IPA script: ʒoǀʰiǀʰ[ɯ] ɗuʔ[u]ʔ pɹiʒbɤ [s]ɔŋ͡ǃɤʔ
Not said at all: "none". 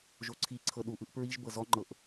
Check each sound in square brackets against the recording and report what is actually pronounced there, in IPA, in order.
ɤ, ɯ, z

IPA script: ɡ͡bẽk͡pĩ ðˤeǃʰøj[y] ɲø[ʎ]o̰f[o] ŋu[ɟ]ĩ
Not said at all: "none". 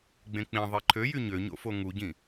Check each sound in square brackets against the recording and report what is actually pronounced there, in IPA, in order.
y, ɲ, o, ɟ

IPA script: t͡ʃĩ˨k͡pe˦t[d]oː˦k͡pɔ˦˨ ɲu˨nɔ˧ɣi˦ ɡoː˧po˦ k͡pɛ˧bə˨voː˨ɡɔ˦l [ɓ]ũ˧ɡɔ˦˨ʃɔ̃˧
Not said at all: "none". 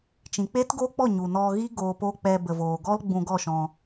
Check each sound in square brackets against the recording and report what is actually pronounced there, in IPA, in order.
ɡ, ɡ͡b

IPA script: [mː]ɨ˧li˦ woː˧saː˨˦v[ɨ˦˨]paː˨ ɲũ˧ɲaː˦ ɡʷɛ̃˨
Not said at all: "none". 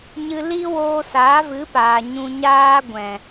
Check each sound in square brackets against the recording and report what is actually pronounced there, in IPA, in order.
ɲ, ɨ˨˦

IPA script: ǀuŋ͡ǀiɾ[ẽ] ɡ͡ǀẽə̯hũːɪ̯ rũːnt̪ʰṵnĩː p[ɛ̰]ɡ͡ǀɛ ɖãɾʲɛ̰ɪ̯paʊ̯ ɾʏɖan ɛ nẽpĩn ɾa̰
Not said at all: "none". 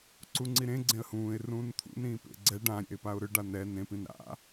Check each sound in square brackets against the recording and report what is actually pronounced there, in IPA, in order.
ẽ, ḛ

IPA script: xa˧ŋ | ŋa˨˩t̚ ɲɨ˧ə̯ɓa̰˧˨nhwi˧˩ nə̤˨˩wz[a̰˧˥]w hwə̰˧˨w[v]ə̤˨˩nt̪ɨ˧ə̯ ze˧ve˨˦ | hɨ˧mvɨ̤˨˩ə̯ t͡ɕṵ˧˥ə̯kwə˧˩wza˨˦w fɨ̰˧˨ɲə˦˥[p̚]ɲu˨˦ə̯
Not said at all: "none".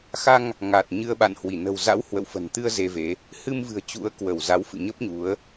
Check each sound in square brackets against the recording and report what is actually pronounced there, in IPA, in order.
a̰˧˥, f, p̚

